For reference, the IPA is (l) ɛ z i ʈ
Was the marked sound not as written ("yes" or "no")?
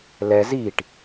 no